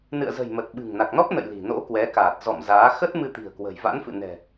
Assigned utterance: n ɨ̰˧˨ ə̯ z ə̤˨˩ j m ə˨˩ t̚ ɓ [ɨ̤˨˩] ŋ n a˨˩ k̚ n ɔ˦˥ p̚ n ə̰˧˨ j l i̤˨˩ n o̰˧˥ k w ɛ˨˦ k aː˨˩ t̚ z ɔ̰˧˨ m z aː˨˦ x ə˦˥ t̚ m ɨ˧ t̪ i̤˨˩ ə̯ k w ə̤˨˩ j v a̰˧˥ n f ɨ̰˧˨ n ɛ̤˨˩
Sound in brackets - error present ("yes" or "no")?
no